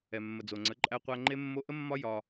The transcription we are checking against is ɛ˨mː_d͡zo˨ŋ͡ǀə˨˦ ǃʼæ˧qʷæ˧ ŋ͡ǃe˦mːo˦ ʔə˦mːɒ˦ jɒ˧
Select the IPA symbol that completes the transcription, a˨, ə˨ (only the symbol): ə˨